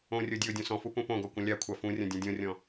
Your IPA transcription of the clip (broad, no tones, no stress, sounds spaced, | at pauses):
õ rʲ o dʲ ɔ ʊ̯ dʲ õ s ɔ̃ f u p ũ p õ ɡ ɔ kʷ ɐ̃ lʲ a kʷʰ a f ũ rʲ ɐ̃ dʲ ũ dʲ õ rʲ ɔ̃